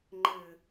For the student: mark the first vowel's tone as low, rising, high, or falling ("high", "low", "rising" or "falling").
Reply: low